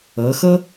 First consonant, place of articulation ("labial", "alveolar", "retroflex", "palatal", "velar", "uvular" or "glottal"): velar